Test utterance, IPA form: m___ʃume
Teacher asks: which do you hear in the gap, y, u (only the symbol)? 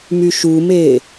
y